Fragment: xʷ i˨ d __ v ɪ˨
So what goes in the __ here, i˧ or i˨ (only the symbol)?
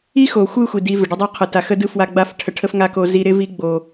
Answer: i˧